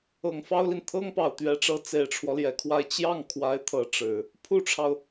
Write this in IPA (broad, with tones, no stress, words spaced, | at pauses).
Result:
ɤ˨˩ŋfɑ˥ʊ̯li˨n t̪ʰɤ˥ŋpɑ˨˩ʊ̯t̪ɥɛ˧˥ʈ͡ʂɤ˧˥ t͡se˨˩ɪ̯ʈ͡ʂʰwɔ˦ljɛ˨˩kʰwa˥˧ɪ̯ t͡ɕjɑ˥˩ŋkʰwa˧˥ɪ̯ t̪ʰɤ˧˥ʈ͡ʂɻ̩˨˩˦ | pʰu˥ʈ͡ʂʰɑ˨ʊ̯